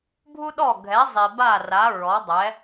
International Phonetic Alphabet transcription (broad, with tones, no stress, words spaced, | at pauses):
bʱu˧ɗɔ˧˩ɡʱɛ˩˧ zˤi˩ba˧˩ra˩˧ ɹɔ˩˧dˤɛ˩˧